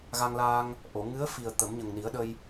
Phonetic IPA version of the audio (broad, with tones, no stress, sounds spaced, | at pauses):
ɣ a˧ ŋ l aː˧ ŋ | ʔ o˨˩˨ ŋ ɨ˧˥ ə̯ f i˨˩ ə̯ t̪ ə˨˩˦ m ɲ ə˨˩ ŋ n i˨˩˦ ə̯ ɗ ə˧ j